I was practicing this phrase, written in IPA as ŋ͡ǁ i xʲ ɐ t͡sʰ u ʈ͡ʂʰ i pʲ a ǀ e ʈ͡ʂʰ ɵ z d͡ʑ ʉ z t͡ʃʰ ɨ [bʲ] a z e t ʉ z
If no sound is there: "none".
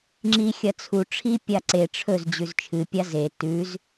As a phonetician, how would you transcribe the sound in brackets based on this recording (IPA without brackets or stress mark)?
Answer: pʲ